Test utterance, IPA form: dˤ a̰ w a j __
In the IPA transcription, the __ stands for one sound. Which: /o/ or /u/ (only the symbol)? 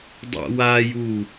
u